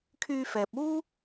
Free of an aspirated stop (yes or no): no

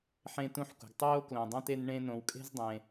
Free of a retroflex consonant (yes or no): no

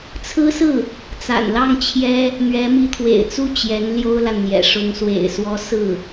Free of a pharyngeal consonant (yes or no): yes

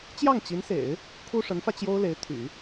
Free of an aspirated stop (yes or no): no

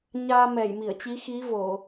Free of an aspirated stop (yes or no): yes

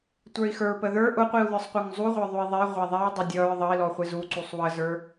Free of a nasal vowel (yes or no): yes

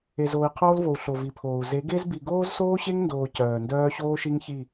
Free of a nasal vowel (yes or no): yes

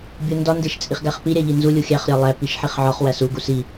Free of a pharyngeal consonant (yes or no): no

